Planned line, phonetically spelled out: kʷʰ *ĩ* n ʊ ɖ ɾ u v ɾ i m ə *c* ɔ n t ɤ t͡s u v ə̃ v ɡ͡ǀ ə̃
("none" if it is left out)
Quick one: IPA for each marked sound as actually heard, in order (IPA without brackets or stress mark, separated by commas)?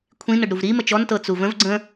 ĩ, t͡ʃ